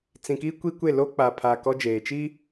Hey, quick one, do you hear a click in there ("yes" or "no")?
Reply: no